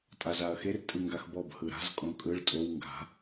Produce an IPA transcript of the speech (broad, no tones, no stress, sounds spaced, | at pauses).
tʼ a z a ɐ̯ x e r tʼ ɯ ŋ ɡ a x b ɔ b h ɯ ɾ a̤ z kʼ õ kʼ ɯ ɭ tʼ o w ŋ ɡ a̤